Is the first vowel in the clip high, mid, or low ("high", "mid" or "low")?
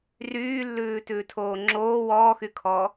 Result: high